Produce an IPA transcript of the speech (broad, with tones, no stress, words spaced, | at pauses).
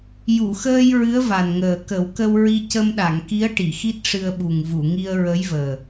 ju˨˩˨xəː˧j ɹɨ˧˥ə̯va˨˩nŋəː˨˩ kə˨˩˦wkə˧wɹi˧ cə˧mɗa˨˩˨ŋki˧˥ə̯ʈi˨˩˨ xi˦˥t̚ʂɨ˧ə̯ɓu˨˩ŋ vu˨˩˨ ŋi˧ə̯ ɹə˧˥jvəː˨˩